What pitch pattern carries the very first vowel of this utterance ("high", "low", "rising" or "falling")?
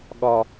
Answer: low